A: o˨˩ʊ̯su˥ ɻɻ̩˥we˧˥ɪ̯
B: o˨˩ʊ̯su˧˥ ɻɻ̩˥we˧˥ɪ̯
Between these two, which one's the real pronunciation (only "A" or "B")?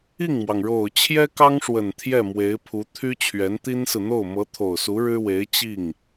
B